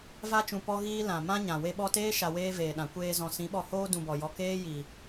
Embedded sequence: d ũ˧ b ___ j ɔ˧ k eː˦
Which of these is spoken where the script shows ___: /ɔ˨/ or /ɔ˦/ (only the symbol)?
ɔ˨